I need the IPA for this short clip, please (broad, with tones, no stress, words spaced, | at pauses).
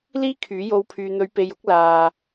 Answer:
liː˥kʰyː˨˥ jo˨˧w pʰyː˨n̪ɵ˨˧ɥpe˨jʊ˧k̚ laː˨